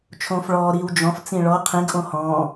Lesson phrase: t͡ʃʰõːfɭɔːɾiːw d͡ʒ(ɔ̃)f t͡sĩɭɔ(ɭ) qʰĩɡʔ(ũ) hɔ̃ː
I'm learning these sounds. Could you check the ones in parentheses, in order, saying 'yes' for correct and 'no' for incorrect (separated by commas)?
yes, no, no